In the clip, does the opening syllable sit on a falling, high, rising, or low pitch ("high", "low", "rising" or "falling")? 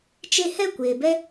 high